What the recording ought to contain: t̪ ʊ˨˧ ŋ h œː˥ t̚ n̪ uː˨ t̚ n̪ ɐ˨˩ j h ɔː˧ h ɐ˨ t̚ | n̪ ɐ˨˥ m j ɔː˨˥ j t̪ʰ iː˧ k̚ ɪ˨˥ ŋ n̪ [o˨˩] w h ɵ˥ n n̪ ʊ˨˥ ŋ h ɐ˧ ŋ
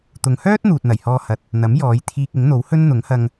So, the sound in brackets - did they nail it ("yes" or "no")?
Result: no